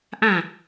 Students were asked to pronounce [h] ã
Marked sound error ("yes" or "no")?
yes